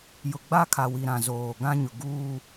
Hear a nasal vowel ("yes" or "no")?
yes